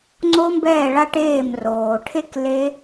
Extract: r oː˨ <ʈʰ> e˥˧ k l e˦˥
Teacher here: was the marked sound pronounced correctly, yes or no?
yes